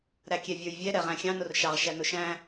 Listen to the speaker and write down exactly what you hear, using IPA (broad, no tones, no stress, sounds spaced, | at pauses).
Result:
ɾ æ kʲ ɛ vʲ ə˞ j vʲ ɛ ɾ ɛ ʁ æ̃ xʲ ɑ̃ n ʊ r ʃ ɑ ʁ ʃ æ n ʊ ʃ æ̃